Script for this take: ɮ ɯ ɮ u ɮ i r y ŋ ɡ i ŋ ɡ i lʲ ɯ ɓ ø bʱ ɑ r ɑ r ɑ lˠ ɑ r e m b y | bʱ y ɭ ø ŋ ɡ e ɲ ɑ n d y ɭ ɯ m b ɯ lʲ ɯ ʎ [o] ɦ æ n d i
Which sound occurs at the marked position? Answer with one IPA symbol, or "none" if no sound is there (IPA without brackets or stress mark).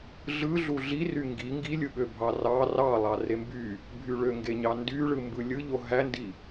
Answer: o